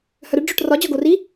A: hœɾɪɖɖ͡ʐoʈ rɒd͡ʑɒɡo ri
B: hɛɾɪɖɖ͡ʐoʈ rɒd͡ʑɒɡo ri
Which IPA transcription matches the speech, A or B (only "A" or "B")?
A